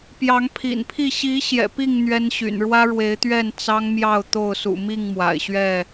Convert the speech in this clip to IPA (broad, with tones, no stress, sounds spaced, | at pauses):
p j ɑ˨˦ ŋ pʰ ḭ˨˩ n pʰ i˥˨ ɕ i˨˦ ɕ j ɛ̰˨˩ p i˥˨ ŋ n̪ ɥ ɛ˦ n ɕ y̰˨˩ n ɻ w ä˦ ɻ w e˨˦ ɪ̯ t̪ ɥ ɛ˥˨ n t͡s ɑ˦ ŋ m j ɑ˥˨ ʊ̯ t̪ o˥˨ ʊ̯ s ṵ˨˩ m i˥˨ ŋ m w a̰˨˩ ɪ̯ ɕ ɥ ɛ˥˨